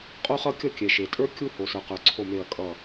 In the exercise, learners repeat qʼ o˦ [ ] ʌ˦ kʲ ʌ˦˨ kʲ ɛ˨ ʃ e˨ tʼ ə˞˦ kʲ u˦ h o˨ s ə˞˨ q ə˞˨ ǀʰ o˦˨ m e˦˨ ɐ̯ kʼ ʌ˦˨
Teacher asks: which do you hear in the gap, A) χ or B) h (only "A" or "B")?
A